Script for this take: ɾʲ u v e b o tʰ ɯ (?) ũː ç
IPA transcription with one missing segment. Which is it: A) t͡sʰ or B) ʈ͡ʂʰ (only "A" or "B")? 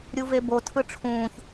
B